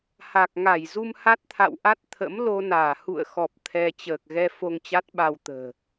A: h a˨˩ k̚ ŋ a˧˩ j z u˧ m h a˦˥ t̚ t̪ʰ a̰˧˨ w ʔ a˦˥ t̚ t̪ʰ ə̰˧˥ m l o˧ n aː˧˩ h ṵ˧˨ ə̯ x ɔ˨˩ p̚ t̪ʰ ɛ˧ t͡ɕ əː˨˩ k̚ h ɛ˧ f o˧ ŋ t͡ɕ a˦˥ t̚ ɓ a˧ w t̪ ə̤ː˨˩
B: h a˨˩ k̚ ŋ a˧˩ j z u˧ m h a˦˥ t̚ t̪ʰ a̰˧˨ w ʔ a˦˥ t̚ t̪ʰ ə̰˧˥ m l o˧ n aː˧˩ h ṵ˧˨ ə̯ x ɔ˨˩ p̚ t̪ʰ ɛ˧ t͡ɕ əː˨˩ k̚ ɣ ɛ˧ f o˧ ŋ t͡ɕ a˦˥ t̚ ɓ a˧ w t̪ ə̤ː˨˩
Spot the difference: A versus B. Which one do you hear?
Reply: B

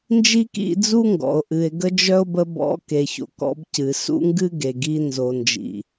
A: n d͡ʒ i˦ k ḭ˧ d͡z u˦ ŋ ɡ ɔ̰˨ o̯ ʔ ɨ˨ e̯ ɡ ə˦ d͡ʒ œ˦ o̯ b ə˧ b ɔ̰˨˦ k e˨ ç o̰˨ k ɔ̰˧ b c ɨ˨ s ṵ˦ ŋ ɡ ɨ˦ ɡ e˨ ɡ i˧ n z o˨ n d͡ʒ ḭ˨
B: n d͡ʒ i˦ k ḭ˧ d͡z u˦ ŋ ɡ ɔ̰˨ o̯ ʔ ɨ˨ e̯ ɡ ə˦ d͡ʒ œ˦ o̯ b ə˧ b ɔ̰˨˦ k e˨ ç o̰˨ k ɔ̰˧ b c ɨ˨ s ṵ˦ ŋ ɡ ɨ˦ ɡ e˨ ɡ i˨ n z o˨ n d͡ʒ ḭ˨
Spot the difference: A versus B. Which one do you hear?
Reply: A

